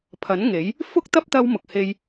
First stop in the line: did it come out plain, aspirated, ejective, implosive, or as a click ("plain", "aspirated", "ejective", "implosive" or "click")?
aspirated